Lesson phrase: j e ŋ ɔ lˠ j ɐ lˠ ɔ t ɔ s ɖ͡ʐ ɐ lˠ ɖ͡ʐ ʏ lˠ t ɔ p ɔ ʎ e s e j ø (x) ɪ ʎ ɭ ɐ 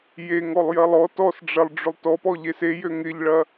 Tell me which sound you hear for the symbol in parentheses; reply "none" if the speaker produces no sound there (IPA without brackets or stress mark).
ŋ